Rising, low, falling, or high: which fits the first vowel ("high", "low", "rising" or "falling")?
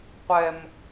high